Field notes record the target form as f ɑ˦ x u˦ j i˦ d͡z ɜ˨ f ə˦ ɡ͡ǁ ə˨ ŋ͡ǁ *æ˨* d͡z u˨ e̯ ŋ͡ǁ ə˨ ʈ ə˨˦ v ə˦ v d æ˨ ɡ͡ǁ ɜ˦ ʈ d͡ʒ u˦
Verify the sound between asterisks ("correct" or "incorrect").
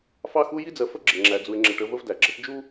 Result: correct